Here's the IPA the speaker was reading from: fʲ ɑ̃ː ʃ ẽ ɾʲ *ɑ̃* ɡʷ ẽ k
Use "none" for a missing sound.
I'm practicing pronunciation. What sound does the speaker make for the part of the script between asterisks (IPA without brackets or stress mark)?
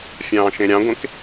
ɑ̃